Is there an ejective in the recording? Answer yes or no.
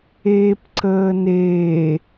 no